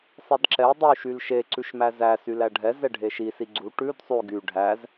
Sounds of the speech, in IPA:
sˤedǁɛ dˤy ʃylʃe ǀʉʃmæzæ sylæɖʱɛ zɛɖʱeʃi siɡ͡ǀu ʈʉd sˤʉ ɡy ɖʱæz

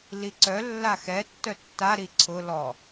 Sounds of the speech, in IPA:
liǀœ lːaxɛ tːœtːa ɾiǀʰʊ lɔ

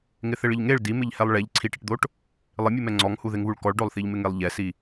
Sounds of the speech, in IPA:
ŋɪθɪɭɪʎŋeɭ dimɪʎhɛlˠ ɭɛʎ ǀʰiʈɪʈd̪oʈ | lˠɪmʲumɛ ŋ͡ǀɔŋhuðɪŋβuɭ kɔɭɖolˠθiʎmɪ ŋelˠʎɛsi

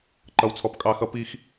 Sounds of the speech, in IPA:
ǃʌ˦wt͡sʰɔ˦pkʼɑ˦ xʌ˦pi˦x

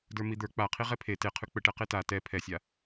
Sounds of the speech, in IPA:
də˞mid̪ə˞ k͡paqʰi ʁɛpʰe teqʰʉ k͡pəʈɛqe ta tɛ pʰɛsʲa

